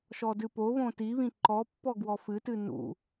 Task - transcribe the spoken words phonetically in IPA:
ʃɔdɨpoβõ tiβĩ ǃɔpːɔ ɡwɔfɨtɨ nṵ

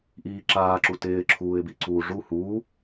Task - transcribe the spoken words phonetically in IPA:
ʔiːǁaːǁu tɪːǁʰuːɪ̯bi ǀuːʐu huː

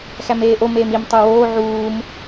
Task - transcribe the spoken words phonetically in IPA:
xæmeːʔo meːmim tˤuwoː ʕuːm

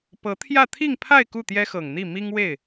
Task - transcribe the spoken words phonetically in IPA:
pɤ˧˥t̪ʰjä˥˧ t̪ʰi˥˧ŋpʰa˥˧ɪ̯ ku˥˩t̪jɛ˥xɤ˨˩ŋn̪i˥˩ mi˥ŋwe˥˩ɪ̯

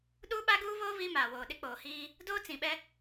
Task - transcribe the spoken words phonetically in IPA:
ɗuː˦ɓa˦ɡuː˦βoː˦ βi˦maː˨woː˨ ɗɪ˦k͡poː˨hiː˦ | doː˦t͡sĩ˨ɓɛ˦

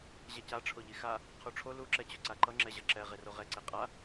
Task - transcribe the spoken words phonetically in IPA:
ʑɛca ʈ͡ʂʰoʎixa | qʰuʈ͡ʂʰo lu ǁɛt͡ɕoǀaǃʌ ŋ͡ǁɛʑʌǁɛ ʁeroʁɛ ǀeqʼa

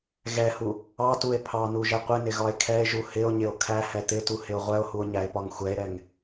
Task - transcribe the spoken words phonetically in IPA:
ɣɛhu | ɑtue̯ pʰɑnuʒɛ qʷɪnɪɣɒe̯ kʰɛe̯ʒu hɪo̯ɲɪo̯ kʰæhɛ t̪ɪtuhɪo̯ ʁʷɛo̯huo̯ɲæe̯pɒŋ xʷɛe̯ɾɛŋ

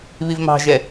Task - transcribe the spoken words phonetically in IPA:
βivmɑ̤ʒɛ

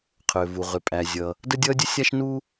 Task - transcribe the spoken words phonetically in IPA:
qʰʏː˩vu˩ ʁʏ˩pʼæ˩ zʲʌ˩ | də˥dʲʌː˥dʲə˥ sʲa˥ʃ nu˥

